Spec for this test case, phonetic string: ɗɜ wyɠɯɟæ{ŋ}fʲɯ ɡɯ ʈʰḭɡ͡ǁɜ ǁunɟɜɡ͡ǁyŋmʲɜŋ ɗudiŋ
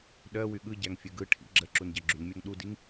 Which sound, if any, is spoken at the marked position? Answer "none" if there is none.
ŋ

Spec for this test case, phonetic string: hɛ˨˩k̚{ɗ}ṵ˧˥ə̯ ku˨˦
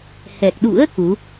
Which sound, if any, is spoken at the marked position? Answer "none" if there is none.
ɗ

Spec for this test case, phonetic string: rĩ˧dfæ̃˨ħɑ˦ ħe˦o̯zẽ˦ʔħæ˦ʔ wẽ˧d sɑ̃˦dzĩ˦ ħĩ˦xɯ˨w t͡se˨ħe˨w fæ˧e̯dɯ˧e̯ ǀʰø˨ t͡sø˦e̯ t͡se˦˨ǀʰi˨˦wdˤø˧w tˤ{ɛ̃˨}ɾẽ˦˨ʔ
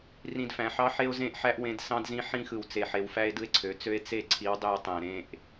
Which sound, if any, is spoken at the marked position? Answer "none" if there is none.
æ̃˨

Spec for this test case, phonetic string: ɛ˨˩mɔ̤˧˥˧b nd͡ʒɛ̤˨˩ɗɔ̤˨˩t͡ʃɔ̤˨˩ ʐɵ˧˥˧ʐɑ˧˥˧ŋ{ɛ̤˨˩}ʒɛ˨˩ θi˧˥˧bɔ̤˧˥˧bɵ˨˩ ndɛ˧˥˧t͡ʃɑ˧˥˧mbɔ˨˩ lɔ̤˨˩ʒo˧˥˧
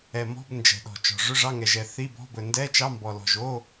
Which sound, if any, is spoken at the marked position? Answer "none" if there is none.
ɛ˨˩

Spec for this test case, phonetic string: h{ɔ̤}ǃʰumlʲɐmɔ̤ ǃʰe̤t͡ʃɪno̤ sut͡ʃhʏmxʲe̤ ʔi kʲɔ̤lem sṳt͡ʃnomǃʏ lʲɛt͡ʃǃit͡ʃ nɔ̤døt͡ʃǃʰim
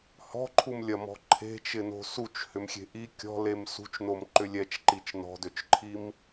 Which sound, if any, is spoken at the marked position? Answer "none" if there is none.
ɔ̤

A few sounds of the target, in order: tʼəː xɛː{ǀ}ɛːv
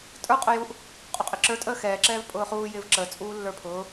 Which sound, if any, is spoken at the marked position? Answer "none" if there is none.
ǁ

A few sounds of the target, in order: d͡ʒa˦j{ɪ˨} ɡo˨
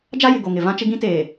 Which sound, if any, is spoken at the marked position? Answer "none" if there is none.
ɪ˨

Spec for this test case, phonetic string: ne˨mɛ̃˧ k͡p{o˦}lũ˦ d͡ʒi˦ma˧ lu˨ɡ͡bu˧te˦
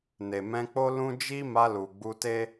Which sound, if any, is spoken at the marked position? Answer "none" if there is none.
o˦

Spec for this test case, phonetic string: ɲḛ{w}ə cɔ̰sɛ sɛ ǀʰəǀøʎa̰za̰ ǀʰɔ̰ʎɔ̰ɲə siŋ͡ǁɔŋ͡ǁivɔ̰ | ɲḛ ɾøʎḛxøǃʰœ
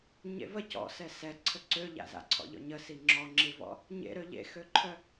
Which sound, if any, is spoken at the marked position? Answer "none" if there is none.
v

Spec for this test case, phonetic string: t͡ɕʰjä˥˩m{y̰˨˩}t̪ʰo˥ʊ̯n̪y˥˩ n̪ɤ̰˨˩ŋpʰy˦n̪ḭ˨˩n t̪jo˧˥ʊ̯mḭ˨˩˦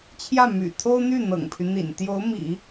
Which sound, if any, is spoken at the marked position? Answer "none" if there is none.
y̰˨˩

